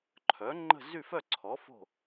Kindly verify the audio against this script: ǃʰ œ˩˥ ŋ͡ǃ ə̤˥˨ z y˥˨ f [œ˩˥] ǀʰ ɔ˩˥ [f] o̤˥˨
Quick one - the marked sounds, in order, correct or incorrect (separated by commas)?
incorrect, correct